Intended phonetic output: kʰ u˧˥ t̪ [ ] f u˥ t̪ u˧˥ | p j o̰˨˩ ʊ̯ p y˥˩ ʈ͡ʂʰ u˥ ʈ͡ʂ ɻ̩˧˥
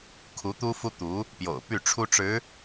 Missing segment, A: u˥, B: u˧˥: A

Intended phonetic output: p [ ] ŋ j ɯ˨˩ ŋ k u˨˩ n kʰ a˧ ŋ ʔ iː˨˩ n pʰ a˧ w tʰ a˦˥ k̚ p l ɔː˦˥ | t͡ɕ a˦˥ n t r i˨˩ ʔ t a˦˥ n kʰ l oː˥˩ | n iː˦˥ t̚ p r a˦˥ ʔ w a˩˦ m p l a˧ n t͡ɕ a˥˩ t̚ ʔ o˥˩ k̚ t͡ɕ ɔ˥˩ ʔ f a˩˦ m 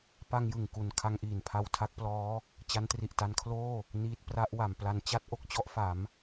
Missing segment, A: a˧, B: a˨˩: A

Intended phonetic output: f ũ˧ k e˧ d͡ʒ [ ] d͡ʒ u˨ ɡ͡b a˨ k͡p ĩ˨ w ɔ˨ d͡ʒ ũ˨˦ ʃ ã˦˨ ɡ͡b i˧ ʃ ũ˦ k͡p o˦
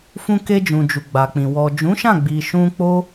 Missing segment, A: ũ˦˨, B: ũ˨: B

